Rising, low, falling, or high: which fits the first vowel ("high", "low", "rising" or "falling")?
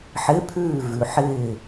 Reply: rising